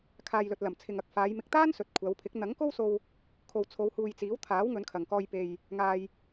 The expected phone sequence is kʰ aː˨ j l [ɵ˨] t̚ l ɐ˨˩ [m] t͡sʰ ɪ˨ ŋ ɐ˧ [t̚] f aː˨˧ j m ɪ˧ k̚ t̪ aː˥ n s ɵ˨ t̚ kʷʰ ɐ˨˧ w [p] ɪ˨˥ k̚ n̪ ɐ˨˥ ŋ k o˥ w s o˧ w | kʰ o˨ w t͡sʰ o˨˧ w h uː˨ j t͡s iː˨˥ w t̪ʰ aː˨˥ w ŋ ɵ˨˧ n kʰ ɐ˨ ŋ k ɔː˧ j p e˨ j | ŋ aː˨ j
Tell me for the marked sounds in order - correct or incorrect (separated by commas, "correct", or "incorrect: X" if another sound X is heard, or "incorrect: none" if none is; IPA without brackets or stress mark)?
correct, correct, incorrect: k̚, incorrect: pʰ